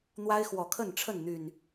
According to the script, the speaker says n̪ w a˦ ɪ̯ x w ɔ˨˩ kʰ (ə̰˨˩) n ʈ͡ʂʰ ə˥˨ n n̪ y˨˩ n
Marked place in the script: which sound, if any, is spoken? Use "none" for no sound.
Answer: ə˥˨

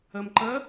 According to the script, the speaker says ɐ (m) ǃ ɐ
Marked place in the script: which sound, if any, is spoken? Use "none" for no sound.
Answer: m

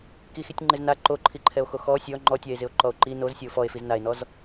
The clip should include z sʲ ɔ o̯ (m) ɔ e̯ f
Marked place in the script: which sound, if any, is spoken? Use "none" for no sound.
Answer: f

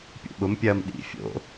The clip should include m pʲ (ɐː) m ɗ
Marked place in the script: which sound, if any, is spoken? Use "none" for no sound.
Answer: ɐː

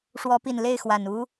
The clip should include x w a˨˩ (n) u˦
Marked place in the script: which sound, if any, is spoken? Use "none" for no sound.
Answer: n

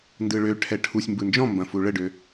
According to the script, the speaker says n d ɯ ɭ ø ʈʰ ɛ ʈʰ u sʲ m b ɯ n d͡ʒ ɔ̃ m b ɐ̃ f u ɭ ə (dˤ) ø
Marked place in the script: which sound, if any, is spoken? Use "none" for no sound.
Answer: ɖ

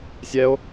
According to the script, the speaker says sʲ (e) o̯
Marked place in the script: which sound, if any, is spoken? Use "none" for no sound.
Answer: ɛ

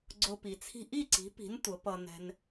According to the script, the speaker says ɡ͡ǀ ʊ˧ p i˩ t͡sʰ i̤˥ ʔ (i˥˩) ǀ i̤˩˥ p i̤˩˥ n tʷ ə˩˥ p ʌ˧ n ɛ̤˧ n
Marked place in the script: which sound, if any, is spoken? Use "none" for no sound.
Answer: i˥˩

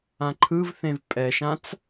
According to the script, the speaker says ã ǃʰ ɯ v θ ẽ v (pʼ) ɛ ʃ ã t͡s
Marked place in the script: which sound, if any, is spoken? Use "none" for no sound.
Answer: pʼ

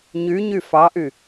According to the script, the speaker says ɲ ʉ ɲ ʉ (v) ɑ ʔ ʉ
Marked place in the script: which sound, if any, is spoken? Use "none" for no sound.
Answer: f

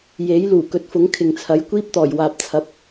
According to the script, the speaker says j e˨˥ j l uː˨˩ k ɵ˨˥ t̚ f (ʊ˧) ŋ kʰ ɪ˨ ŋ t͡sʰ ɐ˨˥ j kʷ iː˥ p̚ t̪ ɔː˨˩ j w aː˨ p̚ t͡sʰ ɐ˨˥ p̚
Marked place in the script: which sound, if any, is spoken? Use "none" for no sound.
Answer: ʊ˨˥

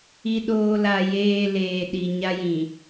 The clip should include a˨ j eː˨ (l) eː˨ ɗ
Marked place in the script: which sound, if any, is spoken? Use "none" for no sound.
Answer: l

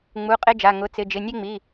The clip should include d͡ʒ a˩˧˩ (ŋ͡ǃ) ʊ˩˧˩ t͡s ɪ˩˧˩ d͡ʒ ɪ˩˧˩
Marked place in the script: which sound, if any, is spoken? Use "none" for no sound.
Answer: ŋ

